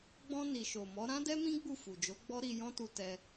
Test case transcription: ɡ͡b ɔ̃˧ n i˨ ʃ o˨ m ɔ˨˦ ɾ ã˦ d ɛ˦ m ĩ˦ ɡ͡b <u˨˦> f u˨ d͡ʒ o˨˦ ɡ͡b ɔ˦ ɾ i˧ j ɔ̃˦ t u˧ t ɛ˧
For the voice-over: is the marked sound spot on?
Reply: no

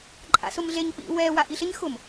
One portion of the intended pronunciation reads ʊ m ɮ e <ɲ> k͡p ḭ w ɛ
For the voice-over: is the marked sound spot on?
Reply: yes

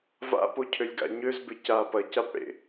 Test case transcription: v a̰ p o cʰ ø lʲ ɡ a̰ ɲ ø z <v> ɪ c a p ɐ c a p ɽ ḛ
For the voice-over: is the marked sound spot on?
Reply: no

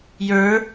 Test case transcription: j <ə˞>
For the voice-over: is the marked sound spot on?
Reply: yes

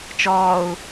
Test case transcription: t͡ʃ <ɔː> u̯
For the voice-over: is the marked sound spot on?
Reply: yes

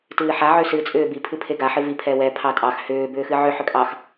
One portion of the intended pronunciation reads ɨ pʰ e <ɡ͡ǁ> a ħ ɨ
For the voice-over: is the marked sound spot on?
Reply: no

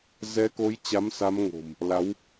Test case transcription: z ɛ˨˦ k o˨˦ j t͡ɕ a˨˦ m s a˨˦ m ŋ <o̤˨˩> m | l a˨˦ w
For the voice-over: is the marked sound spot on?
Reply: yes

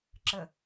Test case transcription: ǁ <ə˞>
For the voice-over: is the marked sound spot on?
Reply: no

